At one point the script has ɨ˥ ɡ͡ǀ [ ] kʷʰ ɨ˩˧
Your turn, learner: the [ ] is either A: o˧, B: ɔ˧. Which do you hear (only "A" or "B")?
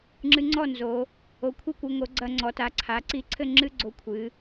A